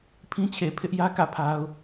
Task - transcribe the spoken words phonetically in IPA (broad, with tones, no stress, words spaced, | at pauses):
pʰĩ˦t͡ɕʰe˨ pʰɪ˦ʔjä˦ kä˦˨pʰa˦ʊ̯